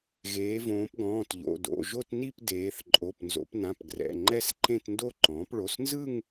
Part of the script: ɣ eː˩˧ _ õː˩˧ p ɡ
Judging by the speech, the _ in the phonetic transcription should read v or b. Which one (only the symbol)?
v